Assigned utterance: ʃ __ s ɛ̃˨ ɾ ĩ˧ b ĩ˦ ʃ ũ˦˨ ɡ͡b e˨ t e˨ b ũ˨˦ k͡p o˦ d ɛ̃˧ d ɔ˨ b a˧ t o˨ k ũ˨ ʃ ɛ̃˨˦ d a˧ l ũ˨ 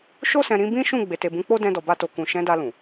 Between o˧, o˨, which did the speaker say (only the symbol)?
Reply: o˧